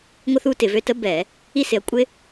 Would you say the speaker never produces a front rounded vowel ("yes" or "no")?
no